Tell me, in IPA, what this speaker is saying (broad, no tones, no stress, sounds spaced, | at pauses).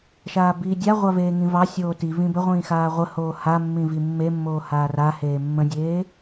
ʃ aː b iː dʲ a ʁʷ a v eː ŋ ĩ v ɑ sʲ oː t i v ĩ b ə ʁʷ ĩː x aː ʁʷ ə h oː h a mː ĩ v i mː e mː oː h aː r a h eː mː ə̃ dʲ eː